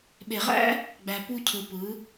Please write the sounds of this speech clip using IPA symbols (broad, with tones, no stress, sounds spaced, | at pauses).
ɓ e˨ ʁ æ̰˦ | ɡ͡b æ˨ p u˧ cʰ ɯ˨ p ɯ˨˦